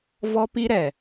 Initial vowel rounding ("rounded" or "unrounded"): rounded